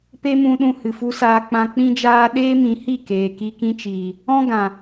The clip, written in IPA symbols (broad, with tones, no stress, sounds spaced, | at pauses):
p e˦ m ũ˧ ɗ ũ˧ h ɨ˨ f u˧ s aː˧ k͡p ã˧ k͡p ĩ˦ d͡ʒ aː˦ ɗ eː˦ m ĩ˨˦ h i˦˨ k eː˨ k i˧ k ĩ˦ t͡ʃ iː˨ | ɔ̃˦ ɡ ã˨